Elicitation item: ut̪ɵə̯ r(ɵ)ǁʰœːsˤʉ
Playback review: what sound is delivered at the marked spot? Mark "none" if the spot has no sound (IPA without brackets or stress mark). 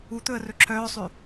ɵ